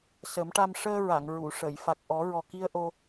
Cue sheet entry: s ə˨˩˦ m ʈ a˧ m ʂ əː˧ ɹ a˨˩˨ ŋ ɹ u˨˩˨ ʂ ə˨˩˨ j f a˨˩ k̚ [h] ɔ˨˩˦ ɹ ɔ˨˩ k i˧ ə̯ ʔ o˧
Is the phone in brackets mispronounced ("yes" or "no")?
yes